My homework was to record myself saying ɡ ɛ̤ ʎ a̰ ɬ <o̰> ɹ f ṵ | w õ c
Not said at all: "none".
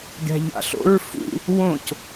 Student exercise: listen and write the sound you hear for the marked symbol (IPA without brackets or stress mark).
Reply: o̰